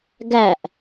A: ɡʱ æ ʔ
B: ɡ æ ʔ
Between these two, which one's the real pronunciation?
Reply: B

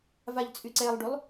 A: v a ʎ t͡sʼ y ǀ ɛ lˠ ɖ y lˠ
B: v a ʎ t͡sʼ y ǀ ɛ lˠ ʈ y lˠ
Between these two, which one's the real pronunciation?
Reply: A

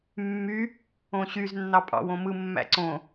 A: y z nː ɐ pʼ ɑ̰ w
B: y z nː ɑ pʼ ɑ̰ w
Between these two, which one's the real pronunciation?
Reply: B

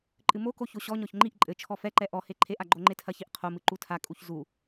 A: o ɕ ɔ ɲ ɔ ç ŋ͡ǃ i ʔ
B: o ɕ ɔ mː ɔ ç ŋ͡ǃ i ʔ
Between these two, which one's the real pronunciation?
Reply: A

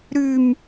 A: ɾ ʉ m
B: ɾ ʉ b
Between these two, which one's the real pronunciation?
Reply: A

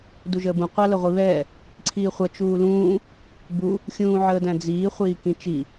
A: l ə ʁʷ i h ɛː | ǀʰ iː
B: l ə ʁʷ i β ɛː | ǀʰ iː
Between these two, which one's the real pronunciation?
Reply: B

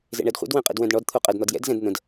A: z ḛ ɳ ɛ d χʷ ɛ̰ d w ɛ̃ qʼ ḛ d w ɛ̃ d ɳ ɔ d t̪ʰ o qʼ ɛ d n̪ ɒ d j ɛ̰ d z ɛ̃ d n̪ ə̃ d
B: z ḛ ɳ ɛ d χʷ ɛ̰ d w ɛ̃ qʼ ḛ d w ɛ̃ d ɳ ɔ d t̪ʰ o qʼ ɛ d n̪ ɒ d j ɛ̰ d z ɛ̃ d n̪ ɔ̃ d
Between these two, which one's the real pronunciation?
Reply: A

